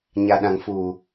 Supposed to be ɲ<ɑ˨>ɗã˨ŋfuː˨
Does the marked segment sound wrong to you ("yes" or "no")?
yes